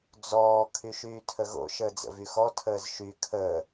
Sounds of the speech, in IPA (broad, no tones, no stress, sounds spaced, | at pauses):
d͡z ɔː kʰ y ʃ yː tʰ ə ɣ o̰ ʃ əː d͡z ə̰ v y x ɔ tʰ əː z ʃ y kʰ əː